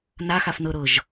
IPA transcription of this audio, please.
n a x a f n ɤ ɾ ɤ ʒ

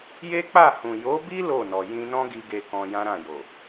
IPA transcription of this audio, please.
j e˦ k͡p a˦˨ h ũ˨ j o˨˦ b i˦ l o˦˨ n ɔ˨ j ĩ˧ n ɔ̃˦ ɡ i˧ ɡ e˨ k ɔ̃˧ j ã˦ ɾ ã˦˨ j o˨

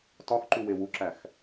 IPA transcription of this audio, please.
t ɒ x ǃ u w e w u ǁ æ x

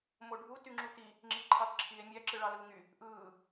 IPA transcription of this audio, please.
m o ɖʱ u t y ŋ͡ǁ u t i | ŋ͡ǁ i ǃʰ ɑ t ǁʰ i e̯ mʲ æ ǁ ɯ ɭ ɑ l ɯː ŋ y | ʔ ɯː

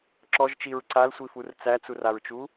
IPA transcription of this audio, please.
ǁ ɔ ʒ t͡ʃ i ɹ ǀ a l sʷ i f u r t͡s æ t͡s u r a ɹ t͡ʃ u

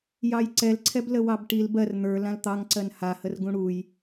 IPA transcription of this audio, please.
j ɑ j ǀ ɛ l ǀʰ ɛ b l ə w ɑ b ʈ i l b ɜ r n̪ ə˞ l ã l t̪ ɑ ŋ ǀ ɜ n h a h ə r ɡ ũ ɽ u j

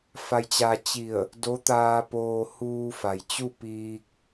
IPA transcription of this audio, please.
f a˧ j t͡ɕ a˧ t͡ɕ i˧˩ ə̯ | d o˧˥ t̪ aː˧ p oː˧ h uː˧ f a˩ j t͡ɕ u˥˨ p iː˧ k̚

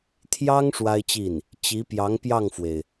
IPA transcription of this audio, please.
t̪ʰ j ɑ˥ ŋ ʂ w a˥ ɪ̯ t͡ɕ i˥˩ n | t͡ɕ i˧˥ p j ɑ˧˥ ŋ p j ɑ˥˩ ŋ f w e˩ ɪ̯

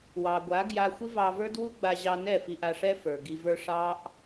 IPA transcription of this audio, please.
w ɑ˨ ɡʷ a˨˦ ɡ j a˧ xʷ i˦ v ɑ˧ v ə˞˦ d w u˦ ɡ͡b a˧ ʑ ɑ˧ n ɛ˦˨ f i˧ ʔ a˧ ʂ ɛ˦ f ə˞˨ ɡ i˧ v ə˞˦ ʂ ɑ˦ ʔ

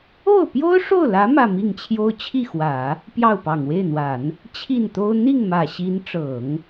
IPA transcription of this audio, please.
o˥˩ ʊ̯ p j o˥ ʊ̯ ʂ o˥˩ ʊ̯ l ä˧˥ m ä˥˧ m i˥˩ ŋ t͡ɕʰ j o˥ ʊ̯ t͡ɕʰ i˥˩ x w ä˨˩˦ | p j ɑ˥˩ ʊ̯ p ɑ˨˩ ŋ w e˥˩ ɪ̯ n̪ w a˨˩˦ n | t͡ɕʰ i˥˩ n t̪ o˥ ʊ̯ n̪ i˥˩ ŋ m ä˨˩ ɕ i˧˥ n ʈ͡ʂ ɤ˨˩˦ ŋ

